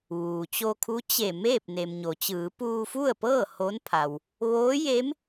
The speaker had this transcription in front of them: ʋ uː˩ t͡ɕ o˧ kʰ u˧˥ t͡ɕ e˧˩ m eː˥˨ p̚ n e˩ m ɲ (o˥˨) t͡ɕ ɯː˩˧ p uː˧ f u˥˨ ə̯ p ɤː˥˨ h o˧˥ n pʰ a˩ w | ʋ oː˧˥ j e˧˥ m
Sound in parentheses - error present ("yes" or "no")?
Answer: yes